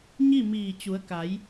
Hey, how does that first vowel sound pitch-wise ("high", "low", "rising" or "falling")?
falling